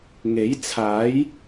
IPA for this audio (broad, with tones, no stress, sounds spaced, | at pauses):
ŋ e˨˥ j t͡sʰ aː˨˥ j